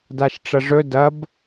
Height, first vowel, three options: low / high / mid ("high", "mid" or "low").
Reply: low